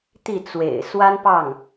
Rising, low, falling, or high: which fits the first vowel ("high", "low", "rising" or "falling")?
falling